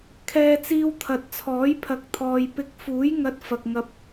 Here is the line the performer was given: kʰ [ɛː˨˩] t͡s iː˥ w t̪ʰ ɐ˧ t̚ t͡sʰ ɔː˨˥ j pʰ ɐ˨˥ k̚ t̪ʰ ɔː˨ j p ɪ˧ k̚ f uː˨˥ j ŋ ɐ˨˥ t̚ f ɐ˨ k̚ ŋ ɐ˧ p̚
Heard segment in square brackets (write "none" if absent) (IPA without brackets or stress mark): ɛː˥